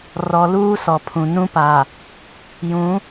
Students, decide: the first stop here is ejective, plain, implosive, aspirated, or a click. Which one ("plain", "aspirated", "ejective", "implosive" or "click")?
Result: aspirated